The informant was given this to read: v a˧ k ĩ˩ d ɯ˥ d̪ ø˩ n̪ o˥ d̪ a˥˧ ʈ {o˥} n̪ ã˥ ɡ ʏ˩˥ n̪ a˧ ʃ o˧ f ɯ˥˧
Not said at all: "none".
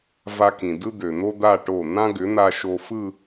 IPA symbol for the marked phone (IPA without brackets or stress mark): o˧˩